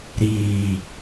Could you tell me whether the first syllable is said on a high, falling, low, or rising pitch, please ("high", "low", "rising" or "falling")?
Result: low